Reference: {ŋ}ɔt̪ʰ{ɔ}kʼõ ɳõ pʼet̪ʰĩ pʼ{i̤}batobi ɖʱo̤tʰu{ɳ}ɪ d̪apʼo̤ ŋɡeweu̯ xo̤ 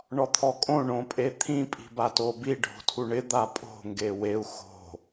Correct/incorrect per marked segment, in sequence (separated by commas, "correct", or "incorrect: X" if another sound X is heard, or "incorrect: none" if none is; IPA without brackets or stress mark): incorrect: ɳ, correct, correct, correct